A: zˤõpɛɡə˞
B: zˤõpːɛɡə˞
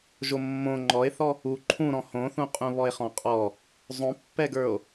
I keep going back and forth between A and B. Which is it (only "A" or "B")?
B